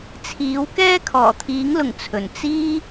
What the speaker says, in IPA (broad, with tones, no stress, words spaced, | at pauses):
t͡sʰiː˨˥w kɛː˥kʰɔː˨˩t̪ʰiː˨˥ŋlʊ˨˩ŋ t͡sʰɵ˨˩n t͡siː˥